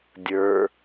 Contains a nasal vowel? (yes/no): no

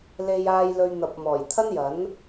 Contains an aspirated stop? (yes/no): yes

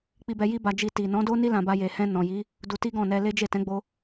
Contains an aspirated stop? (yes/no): no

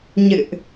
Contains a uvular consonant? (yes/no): no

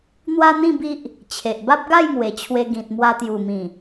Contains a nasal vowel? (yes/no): yes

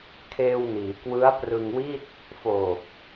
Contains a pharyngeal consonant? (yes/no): no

